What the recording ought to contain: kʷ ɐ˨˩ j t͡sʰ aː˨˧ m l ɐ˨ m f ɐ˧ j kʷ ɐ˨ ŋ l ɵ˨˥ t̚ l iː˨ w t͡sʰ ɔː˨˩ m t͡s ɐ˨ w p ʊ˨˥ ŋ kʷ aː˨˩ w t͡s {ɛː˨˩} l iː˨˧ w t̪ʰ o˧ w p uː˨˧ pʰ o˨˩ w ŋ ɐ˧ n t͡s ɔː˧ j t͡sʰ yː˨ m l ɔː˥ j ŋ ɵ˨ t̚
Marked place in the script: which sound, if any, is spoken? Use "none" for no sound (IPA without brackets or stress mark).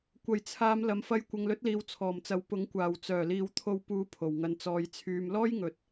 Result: œː˨˩